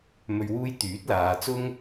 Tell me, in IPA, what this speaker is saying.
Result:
m ɵ˨ ɥ w uː˧ j t̪ yː˨˥ t̚ l aː˨˧ t͡s ʊ˥ ŋ

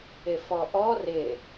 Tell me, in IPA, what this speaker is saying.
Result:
ɪ f ɔ ʔ ɔ r ɪ

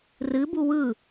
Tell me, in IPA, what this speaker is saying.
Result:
r ɨ b u w ɯ

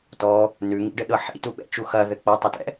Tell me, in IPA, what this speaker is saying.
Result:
t ɔ | n ʉ ŋ ḭ ɖ ɘ ɗ ɤ ħ ḭ t u ɓ ɛ̰ t͡ʃ u x ɐ ð ɘ k͡p ɐ tˤ ə t ɛ̰

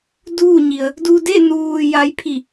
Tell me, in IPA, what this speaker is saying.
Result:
d uː˥˨ ɲ i˩ ə̯ | d u˧ d e˥˨ n uː˧ j a˧ j pʰ i˧˩

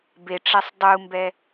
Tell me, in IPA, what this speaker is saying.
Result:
b e ʈ͡ʂ ɛ sˤ dˤ u m b ɛ

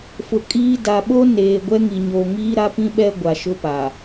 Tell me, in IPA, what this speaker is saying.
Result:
f ʊ˨ kʼ iː˦ d a˨ ɓ o˦ n eː˨ ɡʷ ɛ˦ ŋ i˨ ɲ oː˨ ŋ iː˦ ɾ a˦ p ĩ˦ ɓ ɛ˦ ɡʷ a˨ ʃ ʊ˦ p a˨

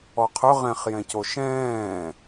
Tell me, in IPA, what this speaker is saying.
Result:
ɔ qʰ ɵ ʁ ɛ̃ χ j ɛ̃ c o ʃ ɛ̃ː

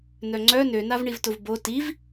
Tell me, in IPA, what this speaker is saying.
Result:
n œ ŋ͡ǀ œ n ø n a v ɳ i v t ʊ v b o t i v

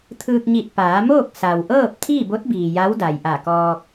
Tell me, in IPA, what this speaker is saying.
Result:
t̪ʰ ɯː˧ k̚ ɲ i˧˩ t̚ p aː˩˧ m oː˥˨ k̚ s a˩ w ʔ ɤː˥˨ p̚ t̪ʰ iː˥˨ b o˧˥ t̚ b iː˩ j a˧˥ w d a˩ j ʔ a˧˩ k ɔː˧ k̚

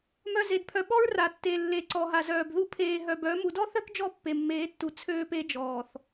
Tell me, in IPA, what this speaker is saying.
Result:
m œ˨ z e˨ d pʰ œ˨ ɓ ɔ˦ ɹ r a˨ tː e˨ lː e˨ ǀ ɔ˨ ɦ a˨ z œː˨ b ð u˦ pʰ eː˨ ɦ œ˨ b œ˨˦ m u˨ d ɔ˦ θ œ˦ k d͡ʒ ɔ˦ pː e˨ mː eː˨˦ tː u˨ t͡sʰ øː˦ p e˦ d͡ʒ ɔː˨ θ

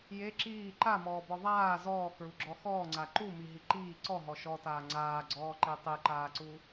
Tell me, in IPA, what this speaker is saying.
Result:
j e ǁ iː ǃ a m ɔː b ɔ ðˤ aː z ɔː k ɹ u ɡ͡ǁ ɔ x ɔː ŋ͡ǀ a ǃ u m i ɦ i ǃ iː ǀ ɔ ɦ ɔ ʃ ɔ t aː ŋ͡ǀ aː ɡ͡ǀ ɔː ǃ e tˤ e ǃ aː ǀ u

